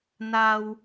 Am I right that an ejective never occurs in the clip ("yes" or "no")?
yes